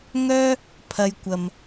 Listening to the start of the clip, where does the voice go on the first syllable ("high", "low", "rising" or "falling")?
high